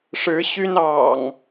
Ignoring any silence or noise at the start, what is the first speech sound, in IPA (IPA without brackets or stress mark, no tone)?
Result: ʂ